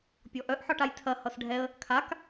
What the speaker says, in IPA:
pʲ ɔ ʔ œ ʔ ħ ɒ ʈ a j tʰ ɐ h ʌ s ɖʱ ɛ ə̯ | kʰ a k

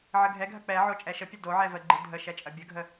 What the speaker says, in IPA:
ʕ ə ɡʱ ɛ ɡʱ ɐ k͡p ɛ ʕ o t͡ʃʼ ɛ ʃ ə pʲ ə d o ʕ ɛ v ə ɡ͡ǃ ɨ dʱ ə ʃ ɛ t͡ʃʼ ɐ bʲ ə ɡʱ ə

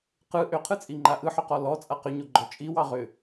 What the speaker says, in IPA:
q ɯ ʔ ʏ qʰ ɯ t͡sʼ i ŋ͡ǃ a ʔ ɯ ħ ʏ q ɔ l ɔ t͡sʼ a q ʏ ɲ o ɡ͡ǃ ɔ t͡ʃʼ i w ɑ ʁ ʏ

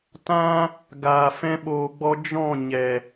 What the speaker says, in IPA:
t ã˦ | ɡ aː˨ f ɛ̃˧ ɓ oː˨ ɡ͡b ɔ˧ d͡ʒ ɔ̃˦˨ ɲ ɛ˨

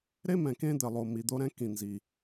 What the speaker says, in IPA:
ɾ e˥ m ɛ̃˩ k ẽ˥ d̪ ɘ˩ lˠ o˩ m i˩ d̪ o˥ ɾ ɛ̃˥ k ĩ˩ n z i˩

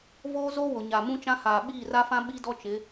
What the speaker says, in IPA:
v oː˦ z o˦ w ʊ˨ ɲ a˨ m ũ˦ t͡ʃ ã˦ h aː˨ ɓ iː˦˨ r a˦ f ã˦ ɓ i˦ d ɔ˦ t͡ʃ ɪ˨˦

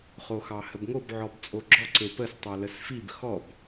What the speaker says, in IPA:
χ o x ɑ h ə b ŋ o b ʕ ɔ b t͡sʼ o ɡ͡ǁ ɔ ǀ e p ə s tˤ a l ə s f i b x ɔ b

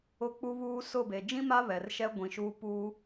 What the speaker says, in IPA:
ʊ˨ k͡p u˨ β uː˨ s ʊ˦˨ b e˨ d͡ʒ ĩ˦ m a˦ β ɛ˨ r ʃ ɛ˦ ɡʷ ĩ˨ ʃ uː˦ p uː˦

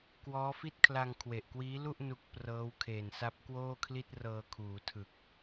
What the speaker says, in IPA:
k w ɔː˦˥ f i˥˩ t̚ kʰ l a˧ ŋ kʰ w e˨˩ ʔ k w iː˦˥ l u˥˩ ʔ n u˦˥ k̚ p r ɤː˦˥ w kʰ eː˨˩ n s a˦˥ p̚ k w oː˥˩ kʰ l i˥˩ t̚ r ɤː˧ kʰ uː˩˦ tʰ ɯ˨˩ k̚

